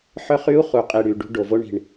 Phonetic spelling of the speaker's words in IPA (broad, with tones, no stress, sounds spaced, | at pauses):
ħ œ˦ χ y˦ u̯ χ u˨ qʼ i˨ ɽ y˨ ɖ ṳ˦ ɖ o˨ v o˦ ɳ i̤˨ ɳ